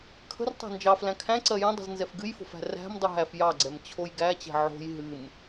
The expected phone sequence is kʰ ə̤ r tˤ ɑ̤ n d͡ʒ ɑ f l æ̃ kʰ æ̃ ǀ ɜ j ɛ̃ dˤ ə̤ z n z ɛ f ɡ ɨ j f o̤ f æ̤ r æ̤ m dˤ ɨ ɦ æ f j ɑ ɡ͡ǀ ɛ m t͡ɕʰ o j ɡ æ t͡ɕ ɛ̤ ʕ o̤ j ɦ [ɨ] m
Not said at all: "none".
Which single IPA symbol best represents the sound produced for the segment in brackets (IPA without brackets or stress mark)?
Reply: ɨ